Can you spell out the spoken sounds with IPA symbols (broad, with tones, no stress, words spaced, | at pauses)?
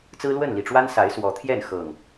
t͡sɹ̩˦lwə˥˨nli˨˩ʈ͡ʂwa˦n sa˨˦ɪ̯ swɔ˨˦t̪ʰjɛ˥˨n xɤ˨˩ŋ